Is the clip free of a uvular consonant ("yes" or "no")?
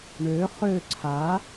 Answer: no